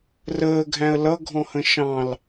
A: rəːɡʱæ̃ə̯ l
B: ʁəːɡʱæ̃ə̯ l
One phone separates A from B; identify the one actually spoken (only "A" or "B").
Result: A